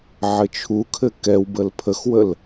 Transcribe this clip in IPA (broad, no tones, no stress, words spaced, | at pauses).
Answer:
ʕɘt͡ʃʰukʰɘ kɛwbəl pʰəxwəl